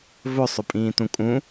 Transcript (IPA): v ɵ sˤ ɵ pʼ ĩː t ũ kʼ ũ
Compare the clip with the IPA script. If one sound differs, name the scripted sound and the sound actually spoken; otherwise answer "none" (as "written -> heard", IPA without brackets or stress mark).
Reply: none